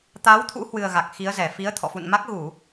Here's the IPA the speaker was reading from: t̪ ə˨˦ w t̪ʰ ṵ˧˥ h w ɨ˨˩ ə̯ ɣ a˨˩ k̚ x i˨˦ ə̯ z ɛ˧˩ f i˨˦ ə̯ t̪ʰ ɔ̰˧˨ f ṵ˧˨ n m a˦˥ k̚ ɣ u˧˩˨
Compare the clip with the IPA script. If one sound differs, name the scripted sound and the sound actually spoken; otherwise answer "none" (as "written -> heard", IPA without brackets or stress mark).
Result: ə˨˦ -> a˨˦